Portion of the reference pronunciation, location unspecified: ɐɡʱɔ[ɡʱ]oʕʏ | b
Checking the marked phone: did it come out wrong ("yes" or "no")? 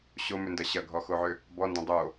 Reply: yes